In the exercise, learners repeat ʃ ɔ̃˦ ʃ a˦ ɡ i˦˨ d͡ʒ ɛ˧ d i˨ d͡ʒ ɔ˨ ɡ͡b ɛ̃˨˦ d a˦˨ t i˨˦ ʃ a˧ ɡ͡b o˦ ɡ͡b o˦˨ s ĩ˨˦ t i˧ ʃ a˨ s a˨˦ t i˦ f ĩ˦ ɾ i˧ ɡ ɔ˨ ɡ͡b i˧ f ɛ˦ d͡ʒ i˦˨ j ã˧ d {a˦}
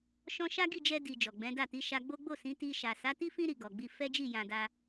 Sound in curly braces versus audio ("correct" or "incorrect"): correct